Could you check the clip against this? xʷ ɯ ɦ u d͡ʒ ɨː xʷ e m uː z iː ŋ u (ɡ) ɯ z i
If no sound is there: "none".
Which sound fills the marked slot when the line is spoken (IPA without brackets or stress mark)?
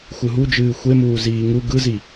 ɡ